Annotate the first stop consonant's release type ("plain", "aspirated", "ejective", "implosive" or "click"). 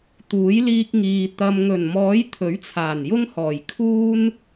plain